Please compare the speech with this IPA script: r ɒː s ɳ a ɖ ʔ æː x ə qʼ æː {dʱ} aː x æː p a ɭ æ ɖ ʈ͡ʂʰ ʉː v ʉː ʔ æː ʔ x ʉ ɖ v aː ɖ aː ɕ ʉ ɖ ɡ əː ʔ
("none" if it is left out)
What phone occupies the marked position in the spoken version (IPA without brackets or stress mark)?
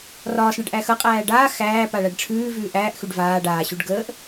ɖ